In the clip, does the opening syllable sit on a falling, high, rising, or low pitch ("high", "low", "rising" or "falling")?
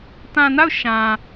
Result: low